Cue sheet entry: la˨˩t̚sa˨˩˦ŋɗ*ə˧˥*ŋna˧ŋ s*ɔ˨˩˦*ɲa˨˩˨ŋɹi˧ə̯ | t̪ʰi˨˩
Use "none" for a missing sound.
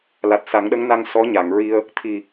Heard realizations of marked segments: ə˧˥, ɔ˧˥

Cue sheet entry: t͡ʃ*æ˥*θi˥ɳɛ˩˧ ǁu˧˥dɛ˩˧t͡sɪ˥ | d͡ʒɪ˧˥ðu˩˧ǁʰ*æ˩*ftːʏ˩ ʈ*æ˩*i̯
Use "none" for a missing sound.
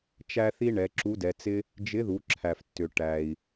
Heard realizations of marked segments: æ˥, æ˩, æ˩

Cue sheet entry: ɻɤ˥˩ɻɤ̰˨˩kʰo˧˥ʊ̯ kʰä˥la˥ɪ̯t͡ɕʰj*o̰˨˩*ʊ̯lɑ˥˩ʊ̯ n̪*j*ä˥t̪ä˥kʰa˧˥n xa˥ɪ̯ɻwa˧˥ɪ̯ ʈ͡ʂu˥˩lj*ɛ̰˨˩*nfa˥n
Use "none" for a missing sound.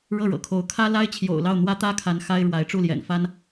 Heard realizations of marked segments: o̰˨˩, w, ɛ̰˨˩

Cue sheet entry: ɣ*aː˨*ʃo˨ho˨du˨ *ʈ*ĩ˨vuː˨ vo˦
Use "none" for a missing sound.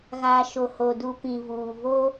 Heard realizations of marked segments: aː˨, p

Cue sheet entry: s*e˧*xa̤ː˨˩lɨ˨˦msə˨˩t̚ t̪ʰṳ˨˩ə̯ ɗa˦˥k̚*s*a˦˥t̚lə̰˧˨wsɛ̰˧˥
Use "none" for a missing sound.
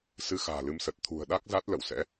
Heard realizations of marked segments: ɨ˧, z

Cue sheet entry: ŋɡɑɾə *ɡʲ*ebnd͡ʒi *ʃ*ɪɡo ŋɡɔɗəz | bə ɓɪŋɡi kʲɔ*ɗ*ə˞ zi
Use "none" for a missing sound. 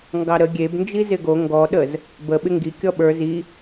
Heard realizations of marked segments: ɡʲ, z, ɓ

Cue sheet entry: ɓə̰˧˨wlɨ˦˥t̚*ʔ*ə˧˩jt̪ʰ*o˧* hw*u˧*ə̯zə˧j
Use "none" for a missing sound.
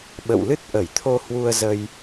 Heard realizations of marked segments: ʔ, o˧, u˧

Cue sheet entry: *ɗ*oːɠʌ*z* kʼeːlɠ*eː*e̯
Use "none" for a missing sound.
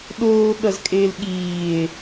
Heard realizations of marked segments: ɗ, z, iː

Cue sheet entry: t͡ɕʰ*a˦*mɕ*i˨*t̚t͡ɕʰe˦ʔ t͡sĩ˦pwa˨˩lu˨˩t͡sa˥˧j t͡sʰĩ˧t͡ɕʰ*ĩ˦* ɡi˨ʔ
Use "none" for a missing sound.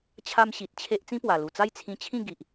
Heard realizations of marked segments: a˦, i˨, ĩ˥˧

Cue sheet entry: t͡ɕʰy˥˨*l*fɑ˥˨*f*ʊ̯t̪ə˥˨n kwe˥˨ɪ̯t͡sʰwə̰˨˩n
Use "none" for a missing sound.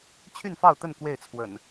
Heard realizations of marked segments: n, none

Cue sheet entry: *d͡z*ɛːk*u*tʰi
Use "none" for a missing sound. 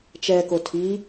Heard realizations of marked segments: t͡ʃ, o

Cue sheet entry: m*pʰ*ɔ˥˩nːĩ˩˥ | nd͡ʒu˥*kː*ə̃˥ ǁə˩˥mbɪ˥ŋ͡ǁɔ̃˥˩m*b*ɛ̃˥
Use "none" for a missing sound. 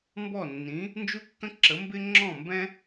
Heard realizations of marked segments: b, kː, b

